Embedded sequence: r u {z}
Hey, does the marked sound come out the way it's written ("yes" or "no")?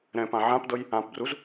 yes